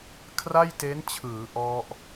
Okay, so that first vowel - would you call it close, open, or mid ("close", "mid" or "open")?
open